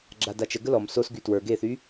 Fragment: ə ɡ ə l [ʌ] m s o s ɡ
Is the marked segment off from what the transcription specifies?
yes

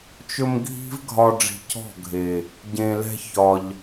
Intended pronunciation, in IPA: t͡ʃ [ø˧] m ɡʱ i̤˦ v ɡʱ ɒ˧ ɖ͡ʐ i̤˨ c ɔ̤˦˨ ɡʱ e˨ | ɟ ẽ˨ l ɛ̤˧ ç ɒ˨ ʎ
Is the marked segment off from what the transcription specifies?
yes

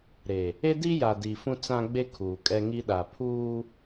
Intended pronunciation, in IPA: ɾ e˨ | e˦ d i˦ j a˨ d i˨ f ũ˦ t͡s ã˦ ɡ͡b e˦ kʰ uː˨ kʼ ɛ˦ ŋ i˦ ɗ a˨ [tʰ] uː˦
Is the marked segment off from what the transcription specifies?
yes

